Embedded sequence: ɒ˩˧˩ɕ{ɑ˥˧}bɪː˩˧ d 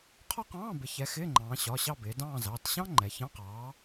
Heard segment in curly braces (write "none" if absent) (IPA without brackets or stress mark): ɑ˥˧